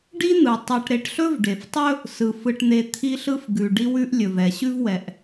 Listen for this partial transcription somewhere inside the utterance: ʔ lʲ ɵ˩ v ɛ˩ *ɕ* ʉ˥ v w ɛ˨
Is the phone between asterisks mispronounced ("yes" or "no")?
no